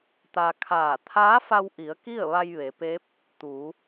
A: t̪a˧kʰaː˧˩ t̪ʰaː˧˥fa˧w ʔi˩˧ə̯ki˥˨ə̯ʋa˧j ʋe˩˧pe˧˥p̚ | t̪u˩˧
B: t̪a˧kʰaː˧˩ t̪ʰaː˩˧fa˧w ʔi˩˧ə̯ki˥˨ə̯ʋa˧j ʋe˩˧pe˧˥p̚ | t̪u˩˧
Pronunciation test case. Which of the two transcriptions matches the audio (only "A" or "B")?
A